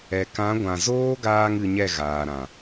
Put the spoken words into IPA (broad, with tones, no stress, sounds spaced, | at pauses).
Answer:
ɛ˨ k ã˨˦ ɡʷ ã˨ z oː˦ ɡ aː˧ ŋ ɨ˧ ɲ ɛ˦˨ ɣ aː˨ ɾ ã˨